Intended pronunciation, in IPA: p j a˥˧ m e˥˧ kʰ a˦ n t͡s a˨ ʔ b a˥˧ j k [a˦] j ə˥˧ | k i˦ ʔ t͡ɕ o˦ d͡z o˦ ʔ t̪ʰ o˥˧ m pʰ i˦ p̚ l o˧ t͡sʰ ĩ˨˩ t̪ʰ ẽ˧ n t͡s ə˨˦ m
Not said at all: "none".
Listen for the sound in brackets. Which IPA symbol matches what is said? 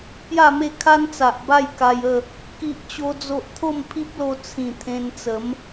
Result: a˧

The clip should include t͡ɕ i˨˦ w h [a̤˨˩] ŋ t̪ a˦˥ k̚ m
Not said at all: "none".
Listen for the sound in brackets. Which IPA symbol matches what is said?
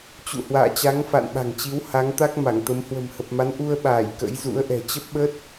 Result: a˨˦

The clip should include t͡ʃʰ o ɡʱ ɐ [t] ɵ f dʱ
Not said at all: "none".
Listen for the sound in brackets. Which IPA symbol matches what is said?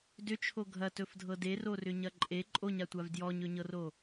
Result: t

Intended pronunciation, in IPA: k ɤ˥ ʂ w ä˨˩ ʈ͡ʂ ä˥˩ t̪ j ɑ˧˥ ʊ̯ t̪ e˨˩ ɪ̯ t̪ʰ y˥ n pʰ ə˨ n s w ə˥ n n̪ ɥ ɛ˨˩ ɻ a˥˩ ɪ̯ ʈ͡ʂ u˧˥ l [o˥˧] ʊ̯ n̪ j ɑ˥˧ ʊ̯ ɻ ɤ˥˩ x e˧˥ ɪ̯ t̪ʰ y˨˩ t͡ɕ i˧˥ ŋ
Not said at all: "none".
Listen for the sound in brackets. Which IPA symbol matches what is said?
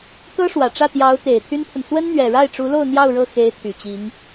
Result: o˥˧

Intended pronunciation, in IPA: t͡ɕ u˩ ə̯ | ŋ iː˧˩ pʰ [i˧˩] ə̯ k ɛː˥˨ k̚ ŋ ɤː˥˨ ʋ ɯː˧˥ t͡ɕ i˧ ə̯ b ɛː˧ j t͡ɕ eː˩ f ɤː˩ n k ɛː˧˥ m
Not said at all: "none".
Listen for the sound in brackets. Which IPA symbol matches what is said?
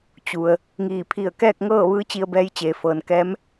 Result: i˧˩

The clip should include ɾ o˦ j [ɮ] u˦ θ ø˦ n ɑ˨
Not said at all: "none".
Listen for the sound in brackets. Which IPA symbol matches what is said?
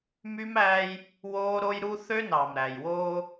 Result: ɾ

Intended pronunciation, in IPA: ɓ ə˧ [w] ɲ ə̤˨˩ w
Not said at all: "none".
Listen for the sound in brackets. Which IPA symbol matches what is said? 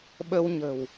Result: w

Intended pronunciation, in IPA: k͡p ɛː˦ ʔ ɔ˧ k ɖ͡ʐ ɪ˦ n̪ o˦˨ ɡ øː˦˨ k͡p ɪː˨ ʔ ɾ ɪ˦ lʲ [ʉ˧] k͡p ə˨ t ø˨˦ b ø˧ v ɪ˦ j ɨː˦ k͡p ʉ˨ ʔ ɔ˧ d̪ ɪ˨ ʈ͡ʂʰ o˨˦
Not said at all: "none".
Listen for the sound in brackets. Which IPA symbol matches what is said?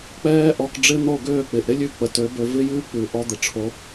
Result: ʉ˧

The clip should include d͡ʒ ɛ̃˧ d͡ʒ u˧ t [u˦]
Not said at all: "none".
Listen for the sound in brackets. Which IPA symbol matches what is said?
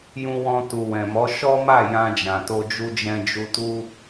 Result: u˦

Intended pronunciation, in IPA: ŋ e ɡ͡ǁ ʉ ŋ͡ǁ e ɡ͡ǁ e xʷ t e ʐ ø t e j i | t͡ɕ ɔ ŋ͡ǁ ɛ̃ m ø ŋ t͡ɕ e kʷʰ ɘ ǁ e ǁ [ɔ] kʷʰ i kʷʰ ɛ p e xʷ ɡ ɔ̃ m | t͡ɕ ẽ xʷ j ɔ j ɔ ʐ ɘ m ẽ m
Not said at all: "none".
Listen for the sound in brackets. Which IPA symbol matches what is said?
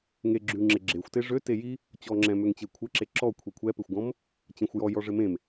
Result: ɔ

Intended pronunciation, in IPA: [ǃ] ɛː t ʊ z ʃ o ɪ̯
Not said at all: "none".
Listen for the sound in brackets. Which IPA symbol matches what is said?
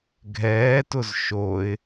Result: ɡʱ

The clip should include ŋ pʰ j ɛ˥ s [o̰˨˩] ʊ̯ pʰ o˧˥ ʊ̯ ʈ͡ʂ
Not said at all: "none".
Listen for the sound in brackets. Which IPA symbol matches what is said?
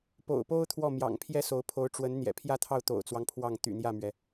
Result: o˧˥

